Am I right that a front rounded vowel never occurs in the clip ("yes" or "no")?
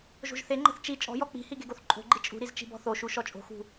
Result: yes